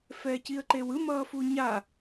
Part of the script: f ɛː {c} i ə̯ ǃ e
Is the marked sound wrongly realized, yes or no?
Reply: no